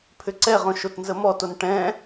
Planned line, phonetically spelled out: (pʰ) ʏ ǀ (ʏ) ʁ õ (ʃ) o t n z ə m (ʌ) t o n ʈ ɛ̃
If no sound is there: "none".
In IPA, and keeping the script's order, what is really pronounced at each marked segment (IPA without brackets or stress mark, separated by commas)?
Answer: pʰ, ɛ, ʃ, ɔ